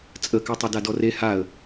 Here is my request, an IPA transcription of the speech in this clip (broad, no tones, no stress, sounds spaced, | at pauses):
t͡sʼ ə k ɛ tˤ ɛ d a d ɔ r e h a ə̯